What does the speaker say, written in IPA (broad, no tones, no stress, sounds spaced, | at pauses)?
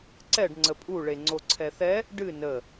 ǀ ɛ ɖ ŋ͡ǀ ə pʼ u ɭ e ŋ͡ǀ o ǀʰ ɛ θ ɛ | ɖ ɨ n ə